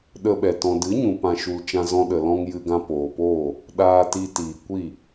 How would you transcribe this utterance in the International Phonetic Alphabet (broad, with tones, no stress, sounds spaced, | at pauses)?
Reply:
ɗ ə˧ ɓ ɛ˨ t ɔ̃˨ d ɨ˨˦ ɲ ũ˨ p ã˧ ʃ u˧ l t͡ʃ ã˦ z ɔ̃˦ ɗ ə˨ l ɔ̃˧ ŋ j ɨ˧ ɡ ã˧ p oː˨ p oː˦˨ | ɗ aː˧ t i˧ t iː˨ kʷ i˦˨